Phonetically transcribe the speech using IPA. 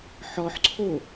ħ ɔ ħ ǀʰ o

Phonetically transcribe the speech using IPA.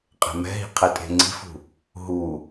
qʼ e̤ m ɛ̤ ɦ i̤ qʰ ɛ tʼ e̤ ŋ͡ǀ i̤ f ṳ | ɦ u

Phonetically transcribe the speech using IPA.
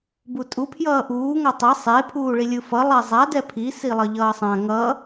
b u tʼ u pʰ j ʌː ʔ uː ŋ a tˤ ɛ sˤ e pʰ uː ɭ i lʲ ɯ f ʌ lˠ ɛ zˤ a d ɛ pʰ i s i lˠ ʌ ʎ ʌː sˤ ã ŋ ʌ

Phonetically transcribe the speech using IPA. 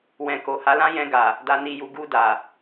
w ɛ̃˨ k o˨ h a˨˦ l ã˦ j ɛ̃˧ ɡ a˨ | d a˨ n i˨ j u˨ ɡ u˧ d a˨

